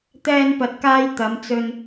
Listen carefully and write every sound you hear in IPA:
t̪ ɛː˧ n p ɐ˨ t̚ k aː˧ j t̪ ɐ˨˧ m t͡s ɵ˧ n

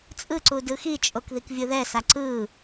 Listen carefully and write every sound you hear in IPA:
t͡sʼ ɯ ǀ u d ɯ x i t͡ʃʼ o k ð i k vʲ ɯ ð ɛ s a ǀ ɯ

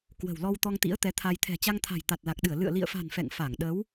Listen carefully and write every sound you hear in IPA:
k w ə̤˨˩ w l ɔ˧ w t̪ ɔ˧ ŋ t̪ ḭ˧˥ ə̯ t̪ ɛ˨˦ t̪ʰ a˧ j t̪ʰ ɛ̤˨˩ t͡ɕ a˧ ŋ t̪ʰ a̤˨˩ j t̪ a˨˩ t̚ l a˨˩ k̚ ɗ ɨ˧˩ ə̯ l ɨ̰˧˨ ə̯ l ḭ˧˨ ə̯ f a̤˨˩ n f ɛ̰˧˨ ŋ f a˧˩ ŋ ɗ ə˨˦ w

